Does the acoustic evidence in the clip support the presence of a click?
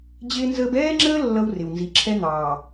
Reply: yes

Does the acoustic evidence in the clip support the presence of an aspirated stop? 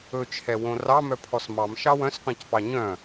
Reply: yes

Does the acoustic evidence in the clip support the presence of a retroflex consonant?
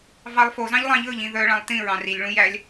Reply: yes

